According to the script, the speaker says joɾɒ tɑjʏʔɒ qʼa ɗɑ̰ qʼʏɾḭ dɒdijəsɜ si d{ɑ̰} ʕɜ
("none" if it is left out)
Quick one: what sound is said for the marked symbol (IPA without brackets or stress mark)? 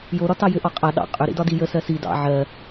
ɑ̰